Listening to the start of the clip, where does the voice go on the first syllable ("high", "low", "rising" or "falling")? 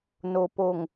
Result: low